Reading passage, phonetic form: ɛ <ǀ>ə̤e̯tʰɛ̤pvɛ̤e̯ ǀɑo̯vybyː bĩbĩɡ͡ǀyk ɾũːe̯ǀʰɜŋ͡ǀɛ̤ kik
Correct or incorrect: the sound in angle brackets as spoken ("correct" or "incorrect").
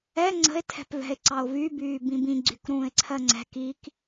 incorrect